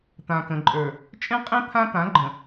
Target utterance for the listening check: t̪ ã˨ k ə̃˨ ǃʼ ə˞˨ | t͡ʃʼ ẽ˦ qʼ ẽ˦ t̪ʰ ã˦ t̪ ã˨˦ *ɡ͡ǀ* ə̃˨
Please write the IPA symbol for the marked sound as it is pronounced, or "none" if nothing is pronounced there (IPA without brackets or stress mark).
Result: ɡ͡ǃ